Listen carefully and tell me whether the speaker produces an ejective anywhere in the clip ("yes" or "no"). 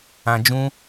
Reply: no